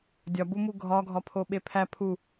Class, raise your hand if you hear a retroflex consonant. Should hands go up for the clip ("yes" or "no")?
no